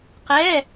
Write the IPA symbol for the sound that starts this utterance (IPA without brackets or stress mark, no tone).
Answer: q